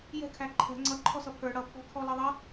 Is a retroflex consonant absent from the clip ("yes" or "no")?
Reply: no